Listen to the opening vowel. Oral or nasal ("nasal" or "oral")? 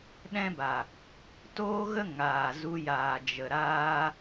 nasal